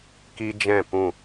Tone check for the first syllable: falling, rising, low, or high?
high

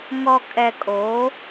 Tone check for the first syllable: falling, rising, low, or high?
low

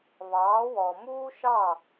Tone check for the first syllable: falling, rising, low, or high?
rising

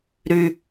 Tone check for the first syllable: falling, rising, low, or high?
high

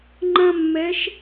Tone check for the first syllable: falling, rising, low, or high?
high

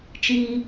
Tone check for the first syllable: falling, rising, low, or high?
high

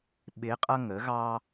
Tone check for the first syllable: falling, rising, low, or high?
rising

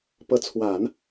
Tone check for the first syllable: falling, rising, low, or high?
rising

